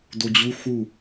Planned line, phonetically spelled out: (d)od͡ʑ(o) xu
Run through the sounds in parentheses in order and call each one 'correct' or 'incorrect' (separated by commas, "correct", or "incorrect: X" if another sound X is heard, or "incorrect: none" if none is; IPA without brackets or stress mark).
correct, incorrect: u